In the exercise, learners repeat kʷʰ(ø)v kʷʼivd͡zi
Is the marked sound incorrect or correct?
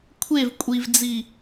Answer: incorrect